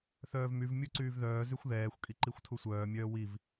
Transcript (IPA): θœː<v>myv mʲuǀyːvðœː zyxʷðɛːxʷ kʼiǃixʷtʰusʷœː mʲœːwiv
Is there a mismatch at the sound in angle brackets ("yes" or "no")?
no